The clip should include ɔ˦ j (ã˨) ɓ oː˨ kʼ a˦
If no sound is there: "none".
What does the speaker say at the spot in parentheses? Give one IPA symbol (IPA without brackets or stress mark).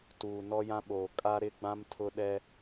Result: ã˦